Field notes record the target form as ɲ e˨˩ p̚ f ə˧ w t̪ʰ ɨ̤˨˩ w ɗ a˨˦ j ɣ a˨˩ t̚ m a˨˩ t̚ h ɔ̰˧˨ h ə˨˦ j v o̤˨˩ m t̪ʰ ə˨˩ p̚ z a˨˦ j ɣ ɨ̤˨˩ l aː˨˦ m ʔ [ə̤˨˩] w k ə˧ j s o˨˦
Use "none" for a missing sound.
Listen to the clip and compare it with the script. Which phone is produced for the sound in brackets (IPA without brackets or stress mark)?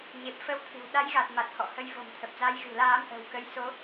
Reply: ə̤˨˩